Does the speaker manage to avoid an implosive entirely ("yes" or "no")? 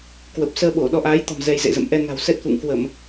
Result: no